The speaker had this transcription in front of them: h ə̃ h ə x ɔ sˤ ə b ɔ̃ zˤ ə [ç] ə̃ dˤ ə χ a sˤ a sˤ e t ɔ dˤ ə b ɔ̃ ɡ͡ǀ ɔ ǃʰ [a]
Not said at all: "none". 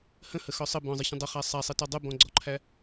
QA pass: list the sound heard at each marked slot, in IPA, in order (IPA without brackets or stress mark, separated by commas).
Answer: ç, æ